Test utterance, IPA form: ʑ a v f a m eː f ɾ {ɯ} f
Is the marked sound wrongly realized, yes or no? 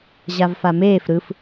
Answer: no